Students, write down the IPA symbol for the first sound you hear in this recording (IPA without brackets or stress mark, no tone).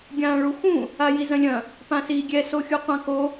ɡʲ